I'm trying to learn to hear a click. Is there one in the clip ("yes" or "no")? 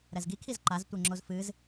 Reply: yes